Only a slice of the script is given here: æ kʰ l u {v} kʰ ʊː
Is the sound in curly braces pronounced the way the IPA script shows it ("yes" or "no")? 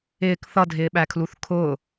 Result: no